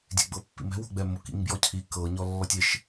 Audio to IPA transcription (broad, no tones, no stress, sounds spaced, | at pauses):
dʲ e̤ ɡ͡b ɤ pː ḭ m ɛ̤ w o̤ ɡ͡b ɛ m o k ḭ ŋ b j ɔ cʰ i k ɤ ɲ ɔ lː ɔ tʲ e ʃ